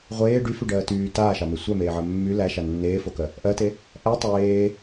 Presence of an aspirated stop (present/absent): absent